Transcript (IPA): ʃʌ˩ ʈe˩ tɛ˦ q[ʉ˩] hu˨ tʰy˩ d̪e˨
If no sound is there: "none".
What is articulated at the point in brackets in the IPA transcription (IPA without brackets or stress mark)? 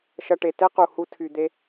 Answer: u˩